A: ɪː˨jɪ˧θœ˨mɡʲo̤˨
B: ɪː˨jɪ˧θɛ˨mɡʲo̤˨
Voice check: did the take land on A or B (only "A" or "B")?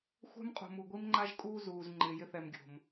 B